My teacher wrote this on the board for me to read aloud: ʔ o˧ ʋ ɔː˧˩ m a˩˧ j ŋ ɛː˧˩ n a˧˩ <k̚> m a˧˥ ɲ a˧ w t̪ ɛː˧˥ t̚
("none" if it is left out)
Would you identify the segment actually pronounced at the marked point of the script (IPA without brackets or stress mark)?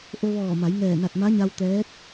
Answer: t̚